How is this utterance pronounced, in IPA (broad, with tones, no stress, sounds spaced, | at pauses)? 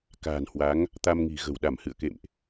k a̤ː˨˩ n h w a˨˦ ŋ | t̪ a˧ m ŋ i̤˨˩ ɣ ə̤˨˩ w ɗ a˧˩ m h ɨ̰˧˨ ə̯ k ḛ˧˨ m ʔ